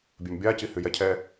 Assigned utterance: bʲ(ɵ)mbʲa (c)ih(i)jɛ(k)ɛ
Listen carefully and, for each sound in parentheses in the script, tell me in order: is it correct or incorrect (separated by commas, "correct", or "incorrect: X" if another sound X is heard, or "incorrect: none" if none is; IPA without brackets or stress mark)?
incorrect: ø, correct, incorrect: y, incorrect: cʰ